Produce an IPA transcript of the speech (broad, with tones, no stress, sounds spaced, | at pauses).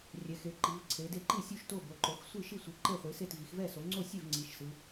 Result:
rʲ ɛ˩˧ x e˩˧ ǃ i˩˧ v ǀʰ e˩˧ d e˥˩ ǃ i˥˩ sʲ u˥˩ ʃ t o˥˩ b o˩˧ ǃ o˩˧ x sʷ i˥˩ ʃ i˥˩ sʷ ɯ˩˧ ǃ e˥˩ χʷ i˩˧ s e˥˩ t v i˩˧ x v ɛ˥˩ s o˩˧ ŋ͡ǀ o˥˩ sʲ e˥˩ v ŋ͡ǀ i˩˧ ʃ s ɯ˩˧